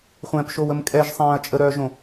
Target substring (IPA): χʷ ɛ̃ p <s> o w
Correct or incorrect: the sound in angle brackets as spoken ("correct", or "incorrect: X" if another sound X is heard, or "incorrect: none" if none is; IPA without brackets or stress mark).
incorrect: ʃ